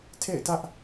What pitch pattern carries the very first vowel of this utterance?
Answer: falling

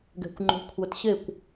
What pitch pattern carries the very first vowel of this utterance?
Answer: low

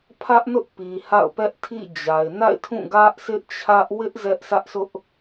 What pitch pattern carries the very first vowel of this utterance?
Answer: high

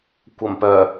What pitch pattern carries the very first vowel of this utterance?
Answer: low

